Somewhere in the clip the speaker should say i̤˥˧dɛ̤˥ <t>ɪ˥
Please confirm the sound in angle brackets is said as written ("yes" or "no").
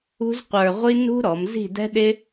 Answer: no